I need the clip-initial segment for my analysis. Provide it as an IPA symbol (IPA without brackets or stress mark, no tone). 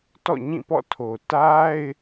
t